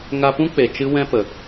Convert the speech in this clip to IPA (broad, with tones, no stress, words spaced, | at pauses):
ŋa˧pũ˦ k͡pe˨t͡ʃɨ˦wɛ̃˦ pə˨